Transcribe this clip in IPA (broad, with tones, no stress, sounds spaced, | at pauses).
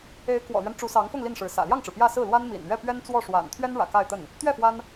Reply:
e˧˥ ɪ̯ k w ɔ̰˨˩ l ɥ ɛ˦ n ʈ͡ʂ u˧˥ s ɑ˧˥ ŋ f ʊ˥˧ ŋ l i˥˩ n ʂ ɻ̩˧˥ s ä̰˨˩ l j ɑ˥˩ ŋ ʈ͡ʂ ɻ̩˩ p j ä˥˧ s ɹ̩˥˩ l w a˥ n m ḭ˨˩ n ɥ ɛ˥˩ p ɥ ɛ˥ n t͡s w ɔ˥˩ ʂ w a̰˨˩ n t̪ʰ ɥ ɛ˥ n ɻ ä̰˨˩ k a˥˧ ɪ̯ t̪ ə˥˩ n | t̪ ɥ ɛ˥˩ f w a˥ n